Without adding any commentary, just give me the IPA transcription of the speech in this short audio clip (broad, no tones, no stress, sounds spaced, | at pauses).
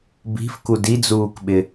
b i̤ f k u d i d͡z uː k ɓ ɪ